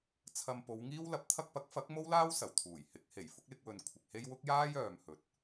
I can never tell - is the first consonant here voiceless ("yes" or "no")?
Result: yes